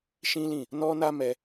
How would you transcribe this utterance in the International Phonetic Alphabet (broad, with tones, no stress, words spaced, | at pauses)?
ʃĩ˦lĩ˦˨ | nɔ˦na˦mɛ˧